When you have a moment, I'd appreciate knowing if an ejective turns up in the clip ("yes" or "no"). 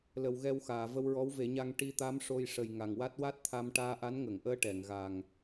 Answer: no